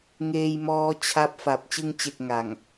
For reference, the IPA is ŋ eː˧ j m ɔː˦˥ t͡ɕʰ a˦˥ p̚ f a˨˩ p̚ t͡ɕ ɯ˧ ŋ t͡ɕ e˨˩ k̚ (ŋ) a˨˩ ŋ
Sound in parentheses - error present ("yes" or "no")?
no